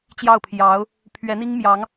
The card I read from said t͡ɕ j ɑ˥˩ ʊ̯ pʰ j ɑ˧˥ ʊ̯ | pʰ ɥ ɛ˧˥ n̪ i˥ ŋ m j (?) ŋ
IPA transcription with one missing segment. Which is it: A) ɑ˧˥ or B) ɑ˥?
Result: A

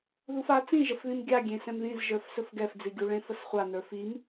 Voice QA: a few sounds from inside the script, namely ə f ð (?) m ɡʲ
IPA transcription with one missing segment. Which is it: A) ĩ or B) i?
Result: A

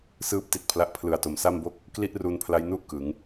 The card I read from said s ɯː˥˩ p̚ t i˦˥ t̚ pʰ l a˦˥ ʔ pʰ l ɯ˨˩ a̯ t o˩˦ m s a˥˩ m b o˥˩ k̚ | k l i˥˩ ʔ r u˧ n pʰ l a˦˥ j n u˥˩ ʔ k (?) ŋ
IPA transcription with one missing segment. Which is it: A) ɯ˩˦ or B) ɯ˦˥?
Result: A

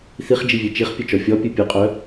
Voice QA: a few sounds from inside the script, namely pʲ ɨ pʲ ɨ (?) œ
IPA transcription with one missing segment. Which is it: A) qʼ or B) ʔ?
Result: A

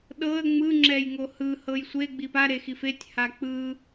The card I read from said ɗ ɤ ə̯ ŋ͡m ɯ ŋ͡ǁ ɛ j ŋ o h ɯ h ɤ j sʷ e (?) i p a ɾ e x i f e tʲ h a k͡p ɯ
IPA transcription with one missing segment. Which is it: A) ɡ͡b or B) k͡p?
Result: A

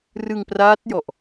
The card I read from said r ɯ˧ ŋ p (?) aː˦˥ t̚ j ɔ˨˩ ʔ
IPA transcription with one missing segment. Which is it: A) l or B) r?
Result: B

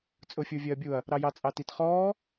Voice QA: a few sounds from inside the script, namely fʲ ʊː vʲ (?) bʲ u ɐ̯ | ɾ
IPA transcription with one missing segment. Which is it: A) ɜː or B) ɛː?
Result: A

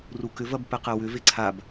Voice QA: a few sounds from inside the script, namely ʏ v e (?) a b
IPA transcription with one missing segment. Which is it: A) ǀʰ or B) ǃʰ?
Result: A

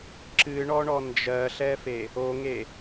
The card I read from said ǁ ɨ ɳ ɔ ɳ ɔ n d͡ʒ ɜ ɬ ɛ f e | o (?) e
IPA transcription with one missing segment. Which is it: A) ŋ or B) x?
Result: A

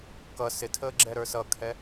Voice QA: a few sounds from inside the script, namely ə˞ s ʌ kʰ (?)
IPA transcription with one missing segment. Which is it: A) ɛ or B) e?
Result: A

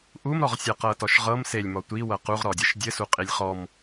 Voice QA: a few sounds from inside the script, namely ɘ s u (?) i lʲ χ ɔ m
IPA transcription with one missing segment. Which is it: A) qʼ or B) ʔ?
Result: A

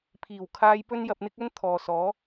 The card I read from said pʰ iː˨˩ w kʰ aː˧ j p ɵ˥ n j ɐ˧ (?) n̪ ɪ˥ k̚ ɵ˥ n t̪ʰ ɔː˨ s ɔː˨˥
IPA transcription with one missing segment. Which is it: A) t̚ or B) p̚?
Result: B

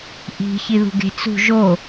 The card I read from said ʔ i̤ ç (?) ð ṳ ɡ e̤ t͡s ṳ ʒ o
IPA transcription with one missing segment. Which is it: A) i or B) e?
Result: A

